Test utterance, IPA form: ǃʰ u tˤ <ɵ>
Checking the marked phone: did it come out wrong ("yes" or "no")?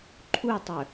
no